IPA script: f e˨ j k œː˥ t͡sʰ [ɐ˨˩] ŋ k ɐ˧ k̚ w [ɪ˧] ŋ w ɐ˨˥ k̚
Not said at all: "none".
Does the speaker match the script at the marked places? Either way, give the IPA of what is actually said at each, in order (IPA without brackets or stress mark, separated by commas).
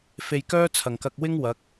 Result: ɐ˨˩, ɪ˥